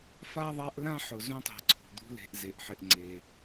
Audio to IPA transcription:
f a˥ ðˤ a˦ ʔ l ã˥ ħ ʊ˨ z ũ˦ tˤ e̤˨ ǀʰ ṳ˩ d̪ ṳ˦ l e̤˨ ʔ z e˩ ʔ ħ ɪ˨ ʔ ŋ͡ǀ e˩

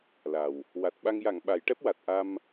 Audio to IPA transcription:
l a˨˩ w | w a˨˩ t̚ ɓ a˧ ŋ j a˨˩˨ ŋ ɓ a˨˩˦ j ʈ ɛ˦˥ p̚ w a˨˩ t̚ ʔ a˧ m

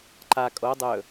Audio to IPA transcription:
ǃ a kʼ o dˤ ɵ

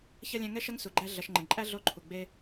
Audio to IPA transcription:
ç ɐ˥ lʲ æ̃˦ ŋ ɛ˥ ʃ ɐ˥ ŋ s u˩ ɡ͡ǃ æ˦ ɮ ɐ˨ ʃ ŋ͡ǃ ə̃˩ ɳ ǃʼ æ˥ ɮ o˦ ǃʰ u˩ ɡ͡b e˦

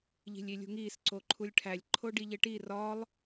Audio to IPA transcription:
ʎ i̤ lʲ i lʲ ṳ ŋ iː s ǀ o ǃʰ u lʲ ʈʰ æ lʲ ǃʰ o ɖ i ʎ e ʈ i r ɒ lˠ

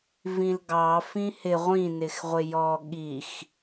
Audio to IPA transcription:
v ĩ l ɡ ɑ f ĩ h ɪ ʁʷ ĩ n ɪ x ʁʷ ɪ j ɔ ɠ i x

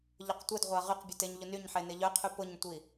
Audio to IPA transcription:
ʎ ʊ q tʷ e d ʁʷ a ʁ y q bʲ ʊ t e ɲ ʎ u n y ɲ ħ e n ɪ ʎ œ qʰ y p ʊ ɲ tʷ i

